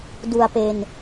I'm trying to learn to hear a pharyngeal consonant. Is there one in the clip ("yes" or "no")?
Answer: no